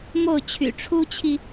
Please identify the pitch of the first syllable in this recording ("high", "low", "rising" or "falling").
falling